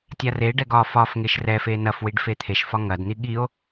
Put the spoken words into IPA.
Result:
tʲ a r e ɖ ɛ ɡ ɒ f ɒ f ŋ e ʃ r ɛ f e n ɐ f w i ɖ f e t̪ʰ e ʃ f ɒ ŋ ɐ d n̪ i ɠ i o̯

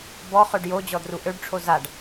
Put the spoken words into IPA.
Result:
b ɔ χ ø ɖ j o d͡ʑ ɔ d r u ʔ ø ɖ ʈ͡ʂʰ o z a ɖ

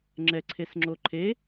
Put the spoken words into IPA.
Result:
ŋ͡ǁ ɛ ǀʰ e s ŋ͡ǁ o ǃʰ e

